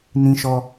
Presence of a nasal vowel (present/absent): present